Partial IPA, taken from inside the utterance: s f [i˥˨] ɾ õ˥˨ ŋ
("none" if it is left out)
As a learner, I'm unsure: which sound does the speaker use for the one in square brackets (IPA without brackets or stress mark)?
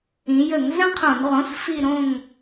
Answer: i˥˨